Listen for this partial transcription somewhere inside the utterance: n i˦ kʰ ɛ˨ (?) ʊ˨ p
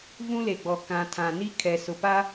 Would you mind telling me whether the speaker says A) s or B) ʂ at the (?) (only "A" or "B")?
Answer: A